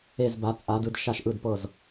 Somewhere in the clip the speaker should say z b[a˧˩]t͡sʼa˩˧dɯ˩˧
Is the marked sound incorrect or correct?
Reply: incorrect